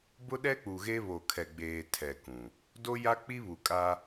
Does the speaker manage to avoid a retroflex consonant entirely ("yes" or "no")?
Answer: yes